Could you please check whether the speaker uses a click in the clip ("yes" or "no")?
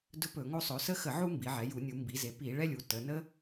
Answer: no